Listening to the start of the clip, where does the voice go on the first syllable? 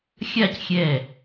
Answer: falling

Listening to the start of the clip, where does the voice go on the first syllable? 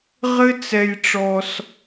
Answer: high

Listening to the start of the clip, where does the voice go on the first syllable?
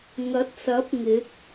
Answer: rising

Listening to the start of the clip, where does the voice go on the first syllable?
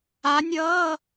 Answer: rising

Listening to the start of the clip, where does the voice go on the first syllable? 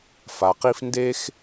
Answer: low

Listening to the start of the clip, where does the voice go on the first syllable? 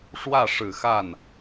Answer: falling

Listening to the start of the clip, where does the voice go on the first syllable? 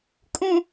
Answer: low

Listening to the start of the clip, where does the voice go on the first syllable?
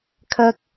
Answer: high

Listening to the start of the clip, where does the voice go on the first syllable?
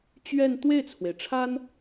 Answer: falling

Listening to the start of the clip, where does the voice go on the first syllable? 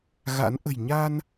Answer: rising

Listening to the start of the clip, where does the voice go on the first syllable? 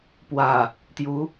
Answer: low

